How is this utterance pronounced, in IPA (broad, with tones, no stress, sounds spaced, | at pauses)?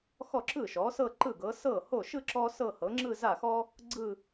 x ɔ˥˩ ǁ ɯ˥˩ ʃ ɔ˩˥ s ɤ˥˧ ǃ ɯ˥˩ ɡ ɤ˩˥ s ɤ˥˩ h o˥˩ ʃ ɯ˥˧ ǁ ɔ˥ s ɤ˥˧ h ɤ˩˥ ŋ͡ǁ ɯ˥˧ z a˥˩ x ɔ˥ | ɡ͡ǀ ɯ˥˧